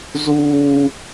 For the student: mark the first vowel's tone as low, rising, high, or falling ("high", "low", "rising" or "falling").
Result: high